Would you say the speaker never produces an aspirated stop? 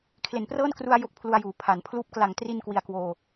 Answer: no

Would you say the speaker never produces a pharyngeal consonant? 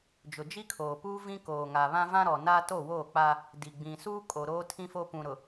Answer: yes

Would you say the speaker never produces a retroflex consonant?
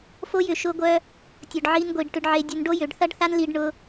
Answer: no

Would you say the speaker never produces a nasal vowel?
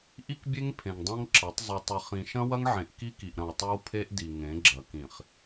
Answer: no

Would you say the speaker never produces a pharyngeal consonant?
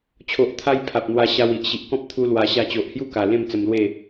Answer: yes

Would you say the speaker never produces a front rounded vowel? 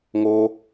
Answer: yes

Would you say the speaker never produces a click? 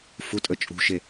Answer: yes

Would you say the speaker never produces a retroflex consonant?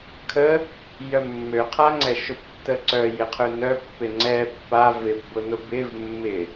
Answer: yes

